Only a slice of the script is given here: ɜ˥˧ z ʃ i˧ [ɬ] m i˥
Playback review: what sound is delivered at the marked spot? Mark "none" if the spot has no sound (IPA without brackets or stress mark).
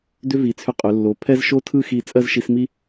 s